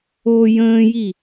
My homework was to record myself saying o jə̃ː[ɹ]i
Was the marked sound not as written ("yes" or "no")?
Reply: yes